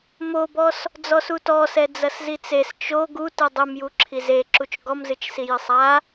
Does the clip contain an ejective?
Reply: no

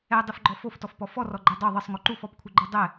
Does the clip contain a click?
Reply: yes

